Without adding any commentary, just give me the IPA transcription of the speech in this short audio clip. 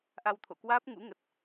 ʔa˧wt̪ʰo̰˧˨kwaː˦˥p̚ ŋṵ˧˥ŋə˨˩t̚

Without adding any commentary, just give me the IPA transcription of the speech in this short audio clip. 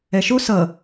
ɛʃo sʌ

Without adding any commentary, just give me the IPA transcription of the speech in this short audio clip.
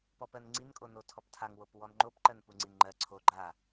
pɔpɜnŋ͡ǀin kʼonotʰɔptʰaŋ wopwɔnŋ͡ǃop ǃɜnpuŋ͡ǀinŋ͡ǃɜ ǀʰo ɡ͡ǃa

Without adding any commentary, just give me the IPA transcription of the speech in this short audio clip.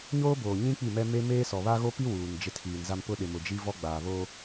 ɲoː˦boː˨ ɲĩ˦ k͡pi˦˨mɛ˦ me˦ meː˦sɔ˨βa˦ ɣo˦pi˦ wuː˨n d͡ʒɪ˦˨tʰiː˨nza˦m pʊ˦ɗɪ˨ mʊ˨d͡ʒi˦ vɔ˦ ɡ͡baː˨βo˦

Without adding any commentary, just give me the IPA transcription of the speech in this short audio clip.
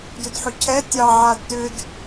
dʏdħʏcʰɛ tʲɑ ʕadtʏd

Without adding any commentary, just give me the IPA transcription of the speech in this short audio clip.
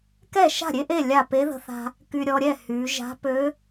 kɛ˥˩ ʃa̤˥˩ɾʲe˥˧ʔe˥˩ lʲa˥˩ pe˧˥ðə̤˧θa̤˧ | ky˧ɾʲɔ˧ɾʲɛ˥˩ hy˩˧ʒa̤˧˥ pø˧˥

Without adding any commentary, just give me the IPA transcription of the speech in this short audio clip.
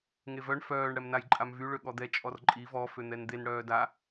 ŋevœɳ fœːɳ ɽɛmnajǃʼamvy ɭøɠɔd̪ɛ t͡ʃʼɔrǃʼi vɔ føn̪ɛnd̪en ɽœːda

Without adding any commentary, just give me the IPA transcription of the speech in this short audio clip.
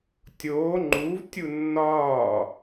tʲoː ŋ͡ǃuːv tʲunːɒː

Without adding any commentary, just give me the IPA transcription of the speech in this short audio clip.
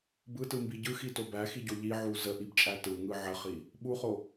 bɯtɯmbi ɟɯxito bæxiɟo ʎiʕu zəʔibt͡ʃʼæ tɯŋɯ ʕəχi | ɓuχo

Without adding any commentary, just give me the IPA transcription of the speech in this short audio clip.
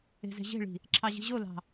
e̤ze̤ʑe̤ɭi̤ | ǁʰɑʑi̤ʑolɑ̤

